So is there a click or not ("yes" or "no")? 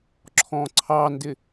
yes